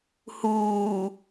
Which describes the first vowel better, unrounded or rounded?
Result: rounded